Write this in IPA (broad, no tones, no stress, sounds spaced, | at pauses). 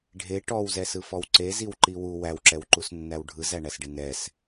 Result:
ɖʱ e ʈ ɔ w z ɛ s ɯ f ɔ w ǀ e z i w ǃ i w u w æ w ǁ ɛ w ǃ u s nː æ w ɖʱ ɯ z æ ɳ æ s ɖ e n ɛ s